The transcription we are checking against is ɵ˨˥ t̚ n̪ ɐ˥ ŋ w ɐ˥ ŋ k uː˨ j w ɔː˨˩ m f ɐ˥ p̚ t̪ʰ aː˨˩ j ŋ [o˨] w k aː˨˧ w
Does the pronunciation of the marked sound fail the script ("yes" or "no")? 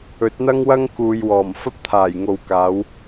no